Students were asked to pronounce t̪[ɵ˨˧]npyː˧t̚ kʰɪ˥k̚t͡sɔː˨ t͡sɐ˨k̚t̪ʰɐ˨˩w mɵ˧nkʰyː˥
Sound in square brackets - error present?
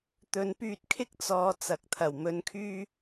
no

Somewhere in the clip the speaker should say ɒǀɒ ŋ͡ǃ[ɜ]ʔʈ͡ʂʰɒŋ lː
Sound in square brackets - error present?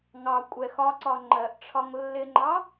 no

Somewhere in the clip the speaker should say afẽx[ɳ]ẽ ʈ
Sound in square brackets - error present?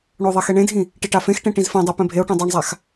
yes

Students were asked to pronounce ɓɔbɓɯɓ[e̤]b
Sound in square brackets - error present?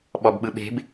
no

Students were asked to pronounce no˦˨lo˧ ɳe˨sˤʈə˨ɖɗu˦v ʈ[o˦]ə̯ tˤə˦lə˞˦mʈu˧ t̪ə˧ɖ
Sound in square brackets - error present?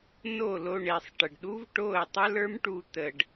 yes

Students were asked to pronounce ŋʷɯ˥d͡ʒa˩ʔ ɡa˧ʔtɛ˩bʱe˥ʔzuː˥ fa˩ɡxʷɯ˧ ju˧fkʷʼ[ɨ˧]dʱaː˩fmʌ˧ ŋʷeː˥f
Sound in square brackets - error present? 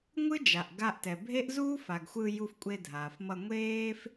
yes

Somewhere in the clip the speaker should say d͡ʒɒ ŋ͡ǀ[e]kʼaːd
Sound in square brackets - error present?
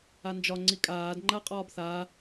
yes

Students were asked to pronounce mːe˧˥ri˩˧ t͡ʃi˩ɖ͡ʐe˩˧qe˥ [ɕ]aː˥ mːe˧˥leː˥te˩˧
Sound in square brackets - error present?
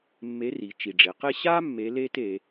no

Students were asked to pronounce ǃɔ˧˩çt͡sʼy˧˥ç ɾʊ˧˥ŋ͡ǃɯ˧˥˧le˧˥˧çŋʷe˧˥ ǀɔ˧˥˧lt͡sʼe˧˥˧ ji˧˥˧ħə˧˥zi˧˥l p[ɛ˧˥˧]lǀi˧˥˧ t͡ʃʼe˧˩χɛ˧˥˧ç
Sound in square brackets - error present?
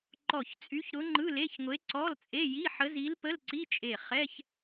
yes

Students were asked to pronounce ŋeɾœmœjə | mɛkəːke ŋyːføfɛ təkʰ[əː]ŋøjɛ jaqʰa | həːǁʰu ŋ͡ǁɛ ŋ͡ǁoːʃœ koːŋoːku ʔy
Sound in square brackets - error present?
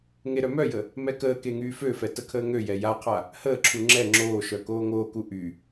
no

